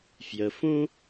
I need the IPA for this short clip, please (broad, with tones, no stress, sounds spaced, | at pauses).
f j ə˧ f ũ˥